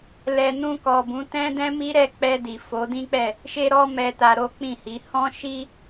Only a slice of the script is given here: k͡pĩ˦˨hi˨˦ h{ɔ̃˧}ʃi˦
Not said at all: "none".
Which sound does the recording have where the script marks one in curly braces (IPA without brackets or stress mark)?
ɔ̃˦